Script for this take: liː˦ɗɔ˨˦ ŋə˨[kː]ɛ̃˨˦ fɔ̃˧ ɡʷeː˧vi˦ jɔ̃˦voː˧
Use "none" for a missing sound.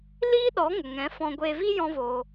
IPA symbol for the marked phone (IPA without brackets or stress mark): ŋ